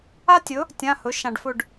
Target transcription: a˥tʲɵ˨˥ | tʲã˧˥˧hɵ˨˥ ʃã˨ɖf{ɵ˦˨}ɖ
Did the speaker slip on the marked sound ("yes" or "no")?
no